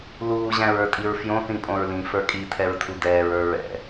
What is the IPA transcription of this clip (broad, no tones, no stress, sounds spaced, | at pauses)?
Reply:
l uː ʑ æ̃ ɹ ə˞ tʼ i ɹ f j õ θ ĩ pʼ õ ɹ l ĩ f ə˞ kʼ i tʰ ɛ ɹ tʰ u d ɛː ɹ ə˞ ɹ ɛ̰